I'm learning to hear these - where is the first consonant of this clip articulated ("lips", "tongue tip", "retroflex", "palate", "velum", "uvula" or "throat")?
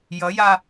palate